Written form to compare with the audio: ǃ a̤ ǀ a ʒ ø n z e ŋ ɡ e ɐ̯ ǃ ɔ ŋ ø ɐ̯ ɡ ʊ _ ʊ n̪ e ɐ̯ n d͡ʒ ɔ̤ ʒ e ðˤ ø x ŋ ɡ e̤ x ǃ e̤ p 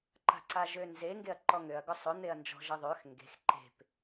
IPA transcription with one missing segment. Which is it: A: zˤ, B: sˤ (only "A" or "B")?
B